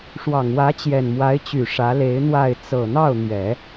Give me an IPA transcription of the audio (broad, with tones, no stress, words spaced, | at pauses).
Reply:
ʂwɑ˨˩ŋwä˧˥ t͡ɕjɛ˨˩nmwa˧˥ɪ̯t͡ɕy˨˩ ʂä˧˥le˧˥ɪ̯n̪wa˥˩ɪ̯ t͡sɤ˨˩n̪ɑ˥˩ʊ̯n̪ɥɛ˨˩˦